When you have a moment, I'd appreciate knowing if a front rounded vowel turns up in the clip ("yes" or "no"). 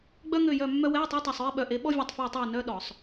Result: yes